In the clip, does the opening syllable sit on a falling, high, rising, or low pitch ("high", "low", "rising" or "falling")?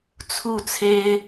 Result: falling